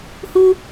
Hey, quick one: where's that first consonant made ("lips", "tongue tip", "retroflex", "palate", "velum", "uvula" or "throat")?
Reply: throat